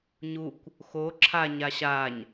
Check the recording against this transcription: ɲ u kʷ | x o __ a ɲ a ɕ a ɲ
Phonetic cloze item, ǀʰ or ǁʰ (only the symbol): ǁʰ